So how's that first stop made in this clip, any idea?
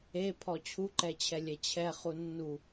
aspirated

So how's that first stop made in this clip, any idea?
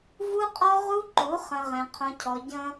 ejective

